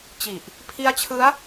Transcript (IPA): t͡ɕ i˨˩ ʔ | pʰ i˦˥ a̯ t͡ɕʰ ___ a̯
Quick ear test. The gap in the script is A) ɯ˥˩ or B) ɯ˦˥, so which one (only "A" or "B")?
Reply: B